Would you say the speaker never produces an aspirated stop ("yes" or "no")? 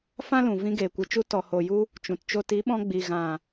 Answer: yes